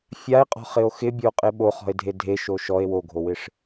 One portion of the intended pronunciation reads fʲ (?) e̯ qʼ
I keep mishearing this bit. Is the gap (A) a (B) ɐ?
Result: A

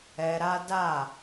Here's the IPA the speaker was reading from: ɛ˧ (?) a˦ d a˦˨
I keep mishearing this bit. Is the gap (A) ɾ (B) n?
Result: A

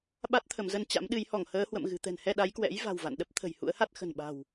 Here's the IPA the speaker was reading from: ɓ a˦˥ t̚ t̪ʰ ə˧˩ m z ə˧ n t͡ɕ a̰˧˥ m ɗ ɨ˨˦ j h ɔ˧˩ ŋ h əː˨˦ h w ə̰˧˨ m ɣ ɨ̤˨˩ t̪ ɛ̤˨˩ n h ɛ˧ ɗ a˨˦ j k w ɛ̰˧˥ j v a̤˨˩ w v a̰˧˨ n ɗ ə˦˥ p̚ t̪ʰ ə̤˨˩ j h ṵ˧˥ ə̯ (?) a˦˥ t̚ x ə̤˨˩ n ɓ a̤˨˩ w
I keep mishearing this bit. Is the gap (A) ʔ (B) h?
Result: B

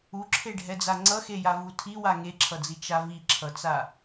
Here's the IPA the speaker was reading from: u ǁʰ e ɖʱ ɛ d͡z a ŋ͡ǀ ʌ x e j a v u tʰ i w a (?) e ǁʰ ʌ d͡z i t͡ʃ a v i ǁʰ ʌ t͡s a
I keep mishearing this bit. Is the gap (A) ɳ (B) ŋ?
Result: B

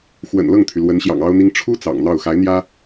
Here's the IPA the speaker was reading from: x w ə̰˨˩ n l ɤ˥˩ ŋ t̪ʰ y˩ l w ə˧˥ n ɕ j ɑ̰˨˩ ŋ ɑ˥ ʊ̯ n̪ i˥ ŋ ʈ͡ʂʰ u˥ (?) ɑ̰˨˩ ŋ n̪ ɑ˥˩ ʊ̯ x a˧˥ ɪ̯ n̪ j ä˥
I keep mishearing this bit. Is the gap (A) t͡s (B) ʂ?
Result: A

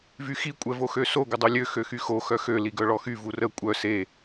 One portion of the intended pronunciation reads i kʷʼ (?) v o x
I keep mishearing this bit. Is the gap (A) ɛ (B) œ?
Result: A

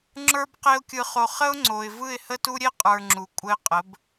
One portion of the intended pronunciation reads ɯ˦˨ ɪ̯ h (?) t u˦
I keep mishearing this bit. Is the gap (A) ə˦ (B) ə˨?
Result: A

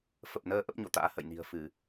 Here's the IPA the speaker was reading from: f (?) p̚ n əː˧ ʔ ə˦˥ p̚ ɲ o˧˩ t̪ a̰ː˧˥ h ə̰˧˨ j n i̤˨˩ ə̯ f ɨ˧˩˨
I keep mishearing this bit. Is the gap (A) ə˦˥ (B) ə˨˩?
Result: B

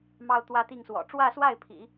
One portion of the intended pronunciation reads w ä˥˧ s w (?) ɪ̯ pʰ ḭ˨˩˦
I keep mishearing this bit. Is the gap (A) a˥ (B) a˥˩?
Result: B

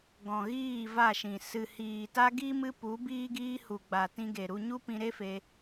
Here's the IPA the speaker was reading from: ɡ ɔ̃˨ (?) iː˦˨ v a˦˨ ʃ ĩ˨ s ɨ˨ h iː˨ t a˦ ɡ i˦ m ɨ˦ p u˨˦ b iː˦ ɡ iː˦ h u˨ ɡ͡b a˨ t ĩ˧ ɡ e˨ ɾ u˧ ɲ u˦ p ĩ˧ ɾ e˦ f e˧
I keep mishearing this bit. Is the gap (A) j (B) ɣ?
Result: B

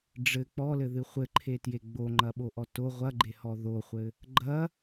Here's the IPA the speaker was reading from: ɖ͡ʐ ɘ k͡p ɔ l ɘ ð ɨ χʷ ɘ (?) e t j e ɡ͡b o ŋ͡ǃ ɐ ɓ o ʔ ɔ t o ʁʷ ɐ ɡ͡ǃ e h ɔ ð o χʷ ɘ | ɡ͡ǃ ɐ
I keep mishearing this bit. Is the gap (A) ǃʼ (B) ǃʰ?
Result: B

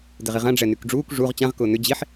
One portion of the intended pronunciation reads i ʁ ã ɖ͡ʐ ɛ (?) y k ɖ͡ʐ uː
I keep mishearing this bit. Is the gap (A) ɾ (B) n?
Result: B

